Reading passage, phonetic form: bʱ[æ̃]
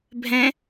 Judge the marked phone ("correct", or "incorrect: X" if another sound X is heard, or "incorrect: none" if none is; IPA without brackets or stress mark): incorrect: ɛ̃